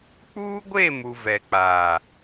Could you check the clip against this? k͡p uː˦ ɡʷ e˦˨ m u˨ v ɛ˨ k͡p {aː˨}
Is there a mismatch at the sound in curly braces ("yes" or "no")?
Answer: no